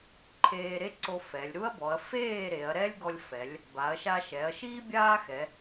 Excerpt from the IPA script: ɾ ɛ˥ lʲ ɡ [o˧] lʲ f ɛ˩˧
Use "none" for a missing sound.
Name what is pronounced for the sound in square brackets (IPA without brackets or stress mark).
ɔ˧